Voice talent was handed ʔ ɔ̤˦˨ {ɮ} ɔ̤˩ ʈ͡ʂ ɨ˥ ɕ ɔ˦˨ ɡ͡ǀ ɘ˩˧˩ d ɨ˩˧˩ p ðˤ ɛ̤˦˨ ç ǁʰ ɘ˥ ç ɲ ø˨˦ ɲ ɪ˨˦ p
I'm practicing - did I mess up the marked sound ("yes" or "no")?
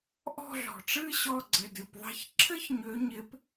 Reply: no